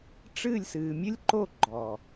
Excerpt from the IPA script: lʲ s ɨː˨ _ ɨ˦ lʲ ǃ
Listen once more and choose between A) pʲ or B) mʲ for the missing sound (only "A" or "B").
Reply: B